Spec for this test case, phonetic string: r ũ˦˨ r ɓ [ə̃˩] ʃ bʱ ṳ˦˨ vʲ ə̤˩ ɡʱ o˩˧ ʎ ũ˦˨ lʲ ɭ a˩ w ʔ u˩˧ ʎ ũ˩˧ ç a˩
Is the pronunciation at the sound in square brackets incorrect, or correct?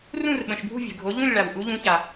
correct